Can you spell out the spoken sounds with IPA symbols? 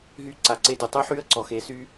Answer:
ɦ y˧˥ ǀ a˩˧ ǀ e˧ d y˩ tˤ y˧˥ ħ y˧˥ ə̯ ǀ ɔ˩ x e˩˧ s y˧

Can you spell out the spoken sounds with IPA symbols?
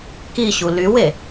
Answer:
k i ɕ u l y w e

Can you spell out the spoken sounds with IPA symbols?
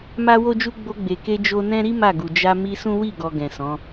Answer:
m a˦ w o˦ d͡ʒ u˦ ɡ͡b o˧ ɡ͡b e˨ k e˧ d͡ʒ o˦ n ɛ̃˦ ɾ i˦ m a˦˨ ɡ u˨ d͡ʒ a˧ m i˧ s ũ˦ w i˦˨ ɡ ɔ˨ ɡ ɛ̃˨ s ɔ̃˨˦

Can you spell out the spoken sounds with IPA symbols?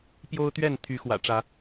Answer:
p j o˦ ʊ̯ t̪ ɥ ɛ˥˨ n t̪ʰ y˨˦ x w ä̰˨˩ ʈ͡ʂ ä˨˦

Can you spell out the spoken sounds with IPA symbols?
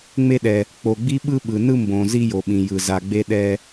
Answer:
ŋ͡m e˧ ɗ ɛ˩ | k͡p o˩ ɡ͡b i˧ ɓ ɯ˧ ɓ ɯ˩ n ɯ˧ m b õ˩ z i˧ j o˩ ɓ ĩ˩ j ɯ˩ z a˩ ɡ͡b e˧ ɗ ɛ˧

